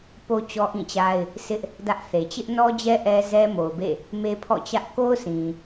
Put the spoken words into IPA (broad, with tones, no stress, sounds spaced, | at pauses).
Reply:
p o˦ t͡ɕ ɔ˦ ʔ ĩ˦˨ t͡ɕ a˦ ɪ̯ | s ɪ˦ ʔ | d ä˦ ʔ θ e˨ t͡ɕ ɪ˦ ʔ n ɔ˦ d͡ʑ ɛ˦ ʔ ɛ˦ z ɛ˦ m o˨ ʊ̯ b ḛ˦˨ | m e˦ pʰ ɔ̰˦˨ t͡ɕ ä˦ ʔ k o˦ ʊ̯ s ĩ˨